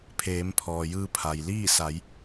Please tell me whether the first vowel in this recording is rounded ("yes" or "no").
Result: no